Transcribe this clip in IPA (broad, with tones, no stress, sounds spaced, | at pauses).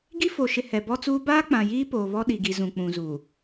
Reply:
ɡ i˦ f o˨ ʃ ɪ˨ h ɛ˨ b ɔ˦ t͡s uː˦ b aː˦ k͡p ã˨ j iː˦ p oː˨ β ɔ˦ ɗ i˨ ɡ i˨ z ũ˨ k͡p ũ˨ z uː˨